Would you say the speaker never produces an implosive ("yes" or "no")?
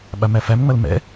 no